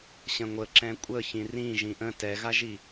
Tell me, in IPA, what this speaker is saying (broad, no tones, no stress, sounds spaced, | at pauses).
ɕ ə̃ ŋʷ ə ǁ ɛ̃ kʷʼ ə ç ĩ r ĩ ʒ ĩ ʔ ə̃ t ɛ ɣ a ʒ i